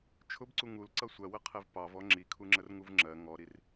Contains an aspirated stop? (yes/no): yes